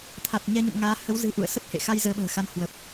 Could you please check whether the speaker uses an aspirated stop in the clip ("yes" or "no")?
yes